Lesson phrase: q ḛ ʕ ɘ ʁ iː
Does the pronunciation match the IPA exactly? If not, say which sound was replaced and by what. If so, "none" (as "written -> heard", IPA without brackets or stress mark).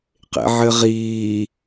none